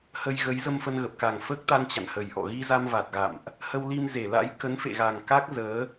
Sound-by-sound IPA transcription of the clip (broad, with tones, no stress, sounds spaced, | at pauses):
h ə˧ j ɣ ə˨˦ j z ə˧ m f ə˧ n ɣ ə˨˩ p̚ k a˨˩ ŋ f əː˦˥ k̚ t̪ a˧ n t͡ɕ a̰˧˨ n h ə˨˩ j ʔ ɔ̰˧˨ ɣ i˧ z a˧ m v a˨˩ t̚ ɣ a̰˧˨ m ʔ | h ə˧ w l i˧ m z e˧˩ l a̰˧˥ j k ə˨˦ n f ḛ˧˨ ɣ a˨˩ ŋ k a˦˥ k̚ z əː˨˦